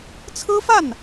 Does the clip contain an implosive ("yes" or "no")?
no